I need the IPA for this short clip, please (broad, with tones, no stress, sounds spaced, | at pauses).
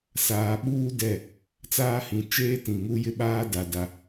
s aː˨ ɓ uː˦ d ɛ˦˨ | t͡s aː˦ h ĩ˨ t͡ʃ eː˦ t ĩ˨ ŋ u˦ j ɪ˦ ɓ aː˦ d a˨ d a˦